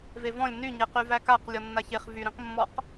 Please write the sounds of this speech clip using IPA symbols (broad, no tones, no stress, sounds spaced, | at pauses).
v e v ɔ̃ lʲ n y ɲ e q y v æ k a q lʲ ɔ nː a ç e χ v y ɾ ĩ q mː ɔ q